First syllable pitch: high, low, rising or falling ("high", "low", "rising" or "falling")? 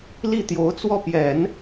falling